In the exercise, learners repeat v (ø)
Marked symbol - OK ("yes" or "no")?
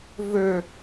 yes